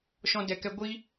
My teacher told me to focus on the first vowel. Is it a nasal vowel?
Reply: yes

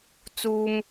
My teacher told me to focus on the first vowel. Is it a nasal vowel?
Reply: no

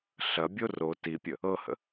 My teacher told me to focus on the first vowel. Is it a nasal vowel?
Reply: no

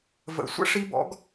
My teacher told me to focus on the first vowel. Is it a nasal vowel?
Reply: no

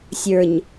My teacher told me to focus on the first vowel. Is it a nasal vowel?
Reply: no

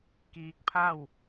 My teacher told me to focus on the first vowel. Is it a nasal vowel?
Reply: no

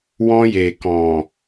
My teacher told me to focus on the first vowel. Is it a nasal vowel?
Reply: yes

